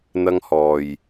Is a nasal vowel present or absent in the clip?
absent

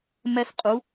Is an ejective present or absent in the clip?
present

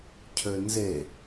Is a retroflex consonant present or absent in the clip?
absent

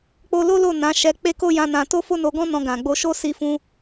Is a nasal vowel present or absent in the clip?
present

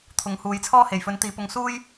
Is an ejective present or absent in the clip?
absent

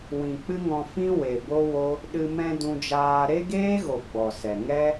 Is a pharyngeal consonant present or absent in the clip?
absent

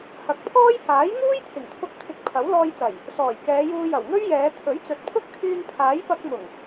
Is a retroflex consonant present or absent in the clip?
absent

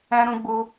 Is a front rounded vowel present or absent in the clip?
absent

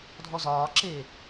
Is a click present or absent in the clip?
present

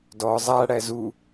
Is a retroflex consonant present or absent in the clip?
present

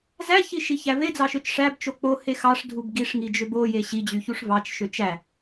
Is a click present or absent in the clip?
absent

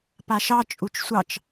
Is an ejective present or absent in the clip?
present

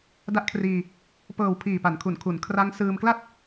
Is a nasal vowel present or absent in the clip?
absent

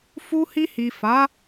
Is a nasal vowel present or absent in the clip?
absent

